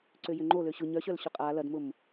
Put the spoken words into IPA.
ǀ ø j ʏ ŋ͡ǃ o l ø ɕ ʊ ɲ œ ɕ œ l ɕ ʏ qʼ a l ɐ d m ʊ m

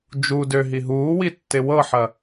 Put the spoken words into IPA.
d͡ʒ u d ø ɦ i ɦ uː w i tː ɪ w ɤ ħ ɐ

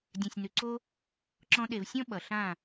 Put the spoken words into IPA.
dʲ œ̃˨ sʲ n ʉ˨ ǀ o˦ | ǁ ɔ̃˧ ɗ e˨ v sʲ ɔ̃˧ ɓ ʌ˨ ɬ ã˦˨

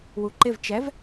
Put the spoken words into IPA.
w u ǃ ɪ v t͡ʃ ɛ v

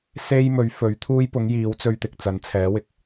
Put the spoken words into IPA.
s e˧ j m ɵ˨˥ ɥ f ɵ˨˥ ɥ t̪ʰ uː˥ j p ʊ˨˥ ŋ j iː˨˥ w t͡s ɵ˧ ɥ t̪ ɪ˨˥ k̚ t͡s ɐ˨˥ n t͡sʰ ɛː˨˥ w ɪ˨ k̚

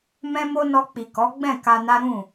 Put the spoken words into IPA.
m ɛ̃˧ m o˧ n ɔ˧ k͡p i˨ k ɔ˨˦ ɡ͡b ɛ̃˦˨ k a˧ n a˦ ɾ ũ˦˨

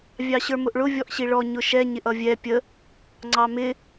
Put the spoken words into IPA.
vʲ ɑ ɕ ə˞ m ʊ ʔ ɭ ʊ vʲ ɔ ʔ ɕ i ɭ ɔ ɲ ʊ ʃ ɛ ɲ ɪ ʔ ʌ vʲ ɛ pʲ ə | ŋ͡ǀ ɑ m ɪ

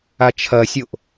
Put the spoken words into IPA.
a t͡ʃʰ ɐ sʲ o ʔ

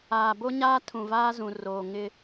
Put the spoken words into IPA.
aː˨ b o˦ ɲ aː˦ tʰ ũ˨ v aː˦ z ũ˨ r oː˨ ŋ ɪ˦

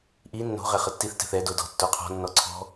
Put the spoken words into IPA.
ʔ i nː o̤ ʁ ɛ χ ə tː i θ t ɛ̤ θ ɛ d o d ɔ̤ tː o qʰ ɔ̤ nː ɔ ǀʰ ɔ̤

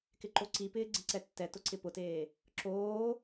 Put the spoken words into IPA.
k ɪ ǃ o ǀ i p ɪː ɡ͡ǀ ɪ ǀ ɛ tː ɛ t ʊ ǀ ɪ p ʊ t eː | ǁ oː

